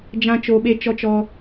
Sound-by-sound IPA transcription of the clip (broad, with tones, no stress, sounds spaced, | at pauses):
d͡ʒ ã˨ t͡ʃ o˨ ɓ e˨ t͡ʃ ɔ˦ t͡ʃ ɔ˦